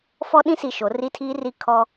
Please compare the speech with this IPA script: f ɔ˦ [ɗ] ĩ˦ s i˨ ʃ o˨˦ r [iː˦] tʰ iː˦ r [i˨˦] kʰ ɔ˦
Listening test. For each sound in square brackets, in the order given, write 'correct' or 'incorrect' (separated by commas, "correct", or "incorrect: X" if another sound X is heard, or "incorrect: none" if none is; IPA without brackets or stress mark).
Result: correct, incorrect: i˦, incorrect: i˦